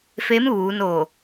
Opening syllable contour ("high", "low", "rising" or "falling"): rising